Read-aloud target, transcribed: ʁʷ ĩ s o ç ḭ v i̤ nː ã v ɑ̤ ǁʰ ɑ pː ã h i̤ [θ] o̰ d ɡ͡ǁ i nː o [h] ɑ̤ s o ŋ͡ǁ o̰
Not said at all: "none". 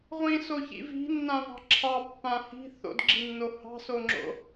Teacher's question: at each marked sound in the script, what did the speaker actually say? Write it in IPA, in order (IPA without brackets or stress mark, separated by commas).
θ, h